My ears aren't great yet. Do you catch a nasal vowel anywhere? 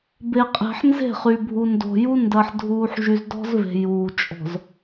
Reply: no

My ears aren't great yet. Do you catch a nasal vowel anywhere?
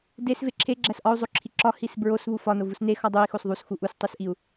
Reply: no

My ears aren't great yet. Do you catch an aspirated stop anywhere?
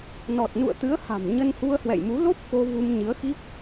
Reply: no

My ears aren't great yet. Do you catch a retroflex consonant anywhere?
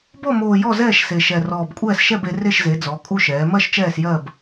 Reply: no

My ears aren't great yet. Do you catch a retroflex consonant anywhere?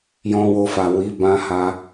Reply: no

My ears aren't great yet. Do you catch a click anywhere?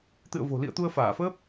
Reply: no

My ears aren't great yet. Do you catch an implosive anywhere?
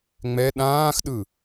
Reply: yes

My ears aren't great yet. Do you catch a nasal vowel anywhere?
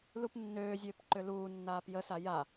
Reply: no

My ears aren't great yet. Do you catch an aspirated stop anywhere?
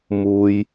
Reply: no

